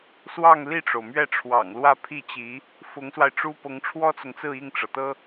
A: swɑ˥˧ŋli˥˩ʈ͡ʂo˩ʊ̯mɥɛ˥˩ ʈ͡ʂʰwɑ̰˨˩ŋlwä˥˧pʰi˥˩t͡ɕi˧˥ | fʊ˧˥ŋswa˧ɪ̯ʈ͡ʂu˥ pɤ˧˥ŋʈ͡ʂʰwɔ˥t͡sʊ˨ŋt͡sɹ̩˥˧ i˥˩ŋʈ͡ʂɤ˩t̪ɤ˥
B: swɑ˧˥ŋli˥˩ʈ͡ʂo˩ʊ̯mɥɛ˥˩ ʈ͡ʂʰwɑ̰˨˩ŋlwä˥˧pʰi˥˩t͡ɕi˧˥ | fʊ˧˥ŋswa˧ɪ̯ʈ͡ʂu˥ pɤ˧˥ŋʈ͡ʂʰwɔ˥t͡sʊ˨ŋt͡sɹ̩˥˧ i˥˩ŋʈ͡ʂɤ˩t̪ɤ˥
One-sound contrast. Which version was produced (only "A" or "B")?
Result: A